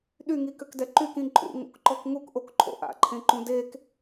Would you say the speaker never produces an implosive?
no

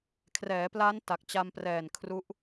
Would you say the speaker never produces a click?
yes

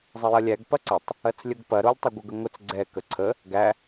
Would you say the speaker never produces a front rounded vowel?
yes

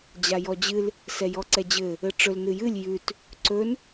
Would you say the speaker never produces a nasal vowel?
yes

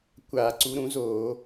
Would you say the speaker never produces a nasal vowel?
no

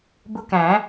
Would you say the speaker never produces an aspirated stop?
yes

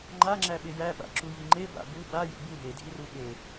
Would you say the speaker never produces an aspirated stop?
yes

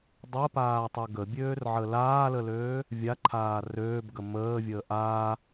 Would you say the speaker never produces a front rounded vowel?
no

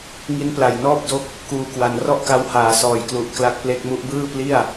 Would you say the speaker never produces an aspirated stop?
yes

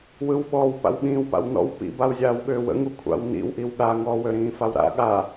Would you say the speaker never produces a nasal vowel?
no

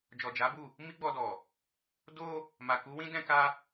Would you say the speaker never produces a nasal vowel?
no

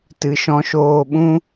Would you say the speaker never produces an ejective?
yes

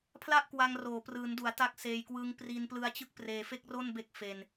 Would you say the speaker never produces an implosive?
yes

